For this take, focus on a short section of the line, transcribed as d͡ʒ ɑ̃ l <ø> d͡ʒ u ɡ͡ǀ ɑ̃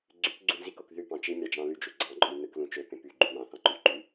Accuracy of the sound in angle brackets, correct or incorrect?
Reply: incorrect